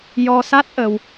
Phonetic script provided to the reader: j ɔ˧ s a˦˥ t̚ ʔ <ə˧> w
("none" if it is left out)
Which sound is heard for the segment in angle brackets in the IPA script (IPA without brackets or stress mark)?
ə˧